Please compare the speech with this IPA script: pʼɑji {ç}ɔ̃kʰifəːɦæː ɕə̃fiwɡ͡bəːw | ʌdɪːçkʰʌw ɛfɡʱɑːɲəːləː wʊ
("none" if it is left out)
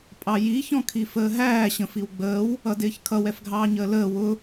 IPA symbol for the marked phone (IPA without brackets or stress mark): ç